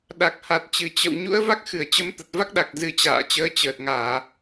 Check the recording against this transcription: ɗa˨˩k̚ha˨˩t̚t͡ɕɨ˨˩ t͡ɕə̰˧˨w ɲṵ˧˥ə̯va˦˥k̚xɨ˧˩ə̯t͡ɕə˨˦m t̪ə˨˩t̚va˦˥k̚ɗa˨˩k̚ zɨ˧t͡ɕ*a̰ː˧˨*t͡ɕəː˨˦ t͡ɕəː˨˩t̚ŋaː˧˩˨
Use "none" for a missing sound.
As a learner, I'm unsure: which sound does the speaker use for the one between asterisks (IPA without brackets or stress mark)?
a̰ː˧˨